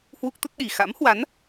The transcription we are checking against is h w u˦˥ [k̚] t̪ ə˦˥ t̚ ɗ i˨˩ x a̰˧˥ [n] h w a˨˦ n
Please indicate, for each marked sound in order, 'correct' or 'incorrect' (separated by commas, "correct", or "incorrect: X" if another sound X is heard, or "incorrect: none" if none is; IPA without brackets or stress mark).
correct, incorrect: m